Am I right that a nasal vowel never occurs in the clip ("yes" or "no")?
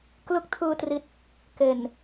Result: yes